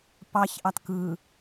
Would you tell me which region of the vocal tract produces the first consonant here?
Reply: lips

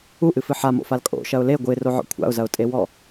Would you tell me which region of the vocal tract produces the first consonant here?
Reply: throat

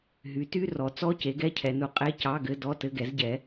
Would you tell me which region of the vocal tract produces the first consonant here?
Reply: throat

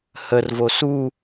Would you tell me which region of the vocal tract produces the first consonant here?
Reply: throat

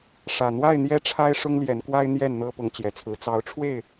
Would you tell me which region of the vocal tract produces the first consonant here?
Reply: retroflex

